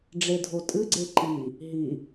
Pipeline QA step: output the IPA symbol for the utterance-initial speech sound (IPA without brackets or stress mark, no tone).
ɖ͡ʐ